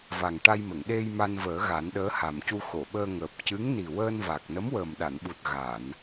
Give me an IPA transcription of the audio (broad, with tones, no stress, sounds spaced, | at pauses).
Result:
v a˨˩ ŋ ʈ a˧ j m ə˨˩˨ ŋ ɗ e˧ j m a˧ n v əː˨˩˦ ɣ a˨˩˦ n ɗ əː˧˥ h a˨˩ m c u˧ x o˨˩˨ ɓ əː˧ ŋ əː˨˩ p̚ c ɨ˧˥ ŋ n i˨˩ w əː˧ n v a˨˩ k̚ n ə˧˥ m w əː˨˩ m ɗ a˨˩˨ n ɓ u˨˩ t̚ ɣ a˨˩˨ n